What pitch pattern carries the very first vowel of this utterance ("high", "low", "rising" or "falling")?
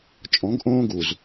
rising